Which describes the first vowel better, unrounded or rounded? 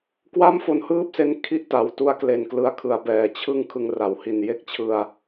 unrounded